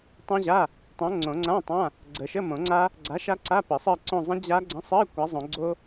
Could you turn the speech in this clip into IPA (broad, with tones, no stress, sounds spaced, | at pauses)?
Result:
tˤ õ˦˥ ʑ a˧˥˧ | tˤ õ˨˥ ŋ͡ǀ õ˨˩˦ ŋ͡ǀ ã˧˥˧ tˤ ã˧˥˧ | ɡ͡ǀ ə˨˩˦ ʃ ə˧˥˧ m õ˨˩˦ ŋ͡ǀ a˦˥ | ɡ͡ǀ a˨˥ ʃ a˦˥ ǀ a˧˥˧ p ə˨˩˦ sˤ ɜ˦˨ ǀ õ˦˨ zˤ ə̃˦˥ d͡ʑ a˦˥ ɡ͡ǀ ə̃˧˥˧ sˤ ɜ˧˥˧ kʷ a˨˥ zˤ õ˨˩˦ ɡ͡ǀ o˦˥